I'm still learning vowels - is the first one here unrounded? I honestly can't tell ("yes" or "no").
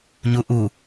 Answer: no